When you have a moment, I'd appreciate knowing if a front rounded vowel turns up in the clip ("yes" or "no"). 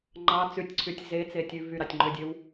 yes